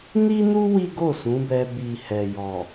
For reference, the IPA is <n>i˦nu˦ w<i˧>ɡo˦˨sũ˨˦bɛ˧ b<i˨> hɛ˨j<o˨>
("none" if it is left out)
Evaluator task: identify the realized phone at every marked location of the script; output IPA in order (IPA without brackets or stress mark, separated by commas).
n, i˦, i˨, ɔ˨